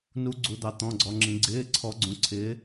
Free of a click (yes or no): no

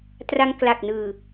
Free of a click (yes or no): yes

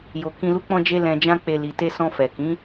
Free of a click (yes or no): yes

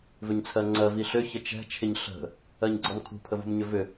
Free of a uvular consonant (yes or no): yes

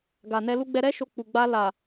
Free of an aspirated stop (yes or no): yes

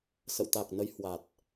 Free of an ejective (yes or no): yes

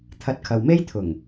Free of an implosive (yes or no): yes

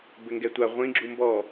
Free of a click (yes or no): no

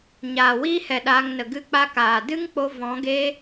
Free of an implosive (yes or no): no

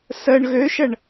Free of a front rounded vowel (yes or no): no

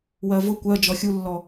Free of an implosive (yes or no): yes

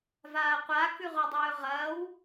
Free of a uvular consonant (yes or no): no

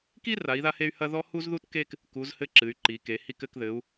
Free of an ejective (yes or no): yes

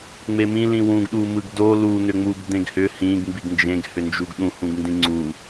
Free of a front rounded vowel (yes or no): no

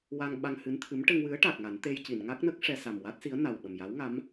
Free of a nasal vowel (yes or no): yes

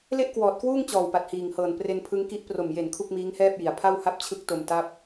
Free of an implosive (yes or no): yes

